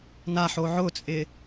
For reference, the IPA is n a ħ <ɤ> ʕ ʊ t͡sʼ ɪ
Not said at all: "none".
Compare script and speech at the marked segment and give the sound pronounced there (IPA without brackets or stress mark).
o